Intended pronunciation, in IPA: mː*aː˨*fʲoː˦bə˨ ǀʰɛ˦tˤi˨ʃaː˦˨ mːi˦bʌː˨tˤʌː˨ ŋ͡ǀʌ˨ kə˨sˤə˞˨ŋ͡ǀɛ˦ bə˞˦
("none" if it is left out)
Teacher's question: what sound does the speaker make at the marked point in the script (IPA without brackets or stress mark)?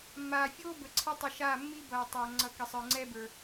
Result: aː˨